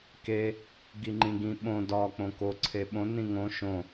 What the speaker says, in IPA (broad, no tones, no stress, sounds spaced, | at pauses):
k e | ɡ i ŋ͡ǃ ĩ ɡ ĩ ɓ õ d ɒ k͡p õ k o ǀʰ e ɓ õ n ĩ ŋ õ ʃ õ